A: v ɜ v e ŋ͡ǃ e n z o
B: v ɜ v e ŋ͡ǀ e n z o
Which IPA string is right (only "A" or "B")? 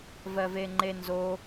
A